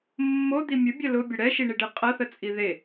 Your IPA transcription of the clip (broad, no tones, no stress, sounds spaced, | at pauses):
mː o d̪ i mʲ ʊ bʲ ɐ l ʊ bʲ ʊ ɽ ɛ ʃ i ɳ i ɖ e qʼ ɐ θ ə t͡sʼ i ð e